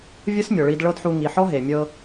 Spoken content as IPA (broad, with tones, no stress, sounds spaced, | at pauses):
vʲ ɯ˦ s mʲ ɔ˨ ɭ i˧ d ɭ ɤ˦ d ħ u˧ ŋ i˨ ħ ɔ˦ ɦ e˨ mʲ ɤ˧